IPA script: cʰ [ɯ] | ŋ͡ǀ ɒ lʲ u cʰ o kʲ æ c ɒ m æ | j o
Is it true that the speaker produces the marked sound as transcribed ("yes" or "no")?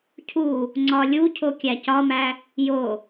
no